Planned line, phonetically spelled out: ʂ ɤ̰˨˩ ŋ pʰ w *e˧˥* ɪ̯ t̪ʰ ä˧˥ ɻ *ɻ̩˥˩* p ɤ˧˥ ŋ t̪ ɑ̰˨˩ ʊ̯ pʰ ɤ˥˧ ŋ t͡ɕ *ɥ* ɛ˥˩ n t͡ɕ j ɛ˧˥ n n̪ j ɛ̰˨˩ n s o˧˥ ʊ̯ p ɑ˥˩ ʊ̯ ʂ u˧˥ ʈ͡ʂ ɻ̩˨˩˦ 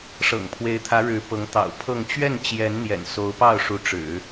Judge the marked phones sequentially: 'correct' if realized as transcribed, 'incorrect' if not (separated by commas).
correct, incorrect, correct